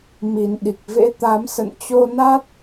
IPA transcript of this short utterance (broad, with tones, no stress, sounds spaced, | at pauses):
m i˨˩ n ɗ i˨˩ k̚ v ḛ˧˥ t̪ a˨˦ m s ə̰˧˨ n t͡ɕ o˧ n a˦˥ t̚